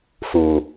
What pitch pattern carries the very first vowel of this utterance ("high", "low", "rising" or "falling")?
low